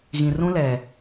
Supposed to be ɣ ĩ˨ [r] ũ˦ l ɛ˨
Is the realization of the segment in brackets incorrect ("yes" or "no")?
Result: no